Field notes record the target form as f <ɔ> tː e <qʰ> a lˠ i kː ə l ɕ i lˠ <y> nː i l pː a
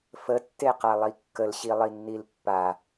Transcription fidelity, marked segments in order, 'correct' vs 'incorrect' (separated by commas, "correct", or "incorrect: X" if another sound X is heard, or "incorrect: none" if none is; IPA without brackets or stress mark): incorrect: ə, incorrect: q, incorrect: i